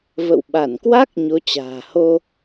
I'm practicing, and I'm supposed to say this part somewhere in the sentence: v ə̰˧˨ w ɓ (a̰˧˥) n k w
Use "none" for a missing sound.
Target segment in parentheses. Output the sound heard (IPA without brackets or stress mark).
a˧˩